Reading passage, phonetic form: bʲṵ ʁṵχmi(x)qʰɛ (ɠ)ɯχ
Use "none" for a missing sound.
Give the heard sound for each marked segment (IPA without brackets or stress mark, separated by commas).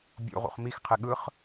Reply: x, ɠ